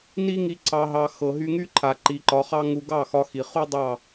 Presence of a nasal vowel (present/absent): absent